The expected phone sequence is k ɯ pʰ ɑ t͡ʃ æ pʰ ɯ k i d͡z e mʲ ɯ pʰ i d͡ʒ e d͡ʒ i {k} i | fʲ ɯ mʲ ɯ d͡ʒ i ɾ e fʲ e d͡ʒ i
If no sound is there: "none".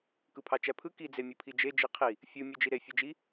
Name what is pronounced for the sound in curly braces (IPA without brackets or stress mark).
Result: qʰ